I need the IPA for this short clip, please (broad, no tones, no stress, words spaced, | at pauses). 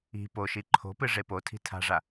i̤ poʃi ǃʰo̤pɨ ʐepotʰi̤ tʰa̤ʐa